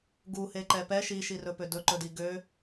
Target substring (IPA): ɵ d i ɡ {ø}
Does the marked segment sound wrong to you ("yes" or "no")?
no